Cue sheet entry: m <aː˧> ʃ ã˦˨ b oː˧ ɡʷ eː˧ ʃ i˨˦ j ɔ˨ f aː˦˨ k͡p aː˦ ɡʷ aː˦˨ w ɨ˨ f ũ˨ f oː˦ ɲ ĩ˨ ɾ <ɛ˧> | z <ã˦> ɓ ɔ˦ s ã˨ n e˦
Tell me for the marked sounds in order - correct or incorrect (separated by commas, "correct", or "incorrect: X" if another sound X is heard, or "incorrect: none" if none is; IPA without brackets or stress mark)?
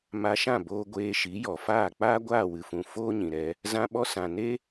incorrect: a˧, correct, correct